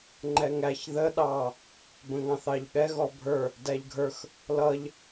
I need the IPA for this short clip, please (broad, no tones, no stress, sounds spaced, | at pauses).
ŋ͡ǃ ɛ ŋ æ ç ð ə ɗ ɑ | b ə̃ ŋ ɑ̃ θ ɑ ʎ ɠ ɛ ɣ ɔ bʱ ə˞ | d æ ʎ ɡʱ ə˞ x | l ʌ ʎ